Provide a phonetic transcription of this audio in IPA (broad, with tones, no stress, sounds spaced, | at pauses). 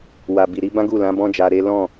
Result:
w a˨ b i˨ ɾ i˧ b ã˦ ɡ u˦˨ l ã˨˦ b ɔ̃˦ d͡ʒ a˧ ɾ e˦ l ɔ̃˦˨